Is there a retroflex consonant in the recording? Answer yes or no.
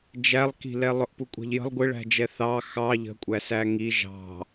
yes